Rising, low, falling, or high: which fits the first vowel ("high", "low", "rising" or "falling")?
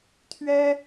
high